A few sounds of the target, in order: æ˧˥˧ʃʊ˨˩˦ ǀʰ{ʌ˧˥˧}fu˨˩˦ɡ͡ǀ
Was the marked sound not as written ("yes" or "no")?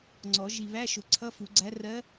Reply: no